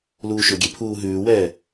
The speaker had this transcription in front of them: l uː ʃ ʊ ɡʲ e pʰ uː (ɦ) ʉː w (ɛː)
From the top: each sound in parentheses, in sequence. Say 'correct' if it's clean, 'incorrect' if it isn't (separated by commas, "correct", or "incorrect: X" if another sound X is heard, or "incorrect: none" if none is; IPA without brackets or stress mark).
correct, correct